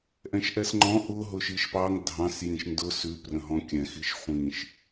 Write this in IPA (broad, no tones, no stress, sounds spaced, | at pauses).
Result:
ʔ ɛ̃ ʃ ʔ ɛ s ŋ͡ǃ ɔ̃ ʔ ʊ ɦ ʊ ʃ i ʃ p ɑ ŋ dʱ ɑ̃ s j ĩ ʃ n d ʊ s ʉ p r ə̃ ɦ ɔ̃ kʲ ɛ̃ x i ʃ χʷ ĩ ʃ